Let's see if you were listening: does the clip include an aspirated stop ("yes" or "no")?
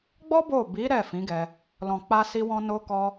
no